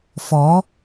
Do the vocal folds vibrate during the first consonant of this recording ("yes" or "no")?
no